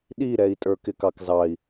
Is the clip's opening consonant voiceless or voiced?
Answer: voiced